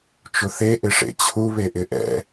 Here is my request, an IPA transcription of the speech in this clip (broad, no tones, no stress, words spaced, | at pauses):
t͡ʃʊθe ʔɪʂḛt͡ɕʰu βeʔɪʔɛ̰